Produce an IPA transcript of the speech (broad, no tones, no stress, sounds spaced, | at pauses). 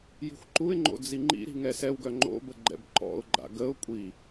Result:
j i̤ xʷ ǃ u ɪ̯ ŋ͡ǃ o̰ d͡z i ŋ͡ǃ ḭ ɾ i̤ ŋ ɛ s ɛ w ɡ œ ŋ͡ǃ o̰ b ə ɡ͡ǃ ɛ̰ b ǃ ɔ̰ ʊ̯ ɡ͡ǃ a̰ ɡ ə ʊ̯ kʷʼ i